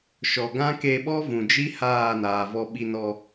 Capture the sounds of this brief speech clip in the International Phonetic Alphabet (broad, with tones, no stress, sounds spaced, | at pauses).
ʃ ɔ˨ ɡ ã˦ k e˧ ɓ ɔ˦ v ũ˨ d͡ʒ i˦ h aː˦˨ n aː˨ v ɔ˧ ɓ i˧ n ɔ˧